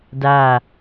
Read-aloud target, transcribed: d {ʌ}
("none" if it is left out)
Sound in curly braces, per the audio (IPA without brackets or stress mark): a